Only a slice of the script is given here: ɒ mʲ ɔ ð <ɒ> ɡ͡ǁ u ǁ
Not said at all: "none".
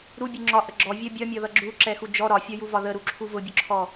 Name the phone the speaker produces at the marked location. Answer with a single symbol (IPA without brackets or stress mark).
ʌ